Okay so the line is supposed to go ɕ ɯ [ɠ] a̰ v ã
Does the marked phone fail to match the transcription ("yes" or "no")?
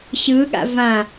no